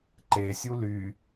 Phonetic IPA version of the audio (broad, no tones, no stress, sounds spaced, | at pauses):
ǃ e sʲ u l y